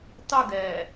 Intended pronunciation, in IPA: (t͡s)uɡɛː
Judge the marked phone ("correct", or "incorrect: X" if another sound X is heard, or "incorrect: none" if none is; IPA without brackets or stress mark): incorrect: tˤ